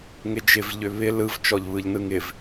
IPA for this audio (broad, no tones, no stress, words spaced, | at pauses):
ŋɪd͡ʒɪv ʎʏβɪ lɯv t͡ʃɔʎβɯʎnɯŋɪv